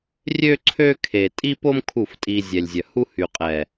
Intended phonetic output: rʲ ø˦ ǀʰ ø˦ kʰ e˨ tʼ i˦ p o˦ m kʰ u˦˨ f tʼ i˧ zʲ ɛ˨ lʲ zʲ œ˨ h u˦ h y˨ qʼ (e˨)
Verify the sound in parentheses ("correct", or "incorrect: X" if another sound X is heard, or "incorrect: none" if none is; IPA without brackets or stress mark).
incorrect: ɛ˨